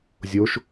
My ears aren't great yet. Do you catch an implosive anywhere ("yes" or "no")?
no